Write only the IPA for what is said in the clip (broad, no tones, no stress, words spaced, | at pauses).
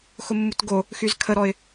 xʊmːutɡo | xyzkʰəɾɔɪ̯